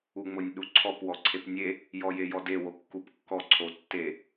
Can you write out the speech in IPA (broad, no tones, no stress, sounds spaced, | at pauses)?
u ŋ͡m ʊ nʲ ɗ u ǀʰ ɔ p w ɔ ǀʰ e p nʲ e | j ɔ j e j ɔ d e w o kː u p kː ɔ ǀʰ o tː e